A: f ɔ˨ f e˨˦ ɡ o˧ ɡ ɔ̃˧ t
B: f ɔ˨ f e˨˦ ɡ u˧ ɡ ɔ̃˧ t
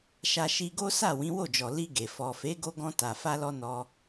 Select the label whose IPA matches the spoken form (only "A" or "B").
A